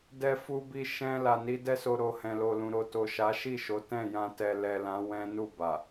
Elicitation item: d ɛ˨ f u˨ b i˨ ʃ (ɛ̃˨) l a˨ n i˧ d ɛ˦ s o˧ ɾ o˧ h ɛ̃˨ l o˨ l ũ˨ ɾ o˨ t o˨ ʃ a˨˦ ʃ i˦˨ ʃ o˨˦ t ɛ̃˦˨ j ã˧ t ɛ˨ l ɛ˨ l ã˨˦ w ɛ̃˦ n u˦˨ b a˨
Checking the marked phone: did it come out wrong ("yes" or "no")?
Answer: no